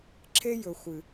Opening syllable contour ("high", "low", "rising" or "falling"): high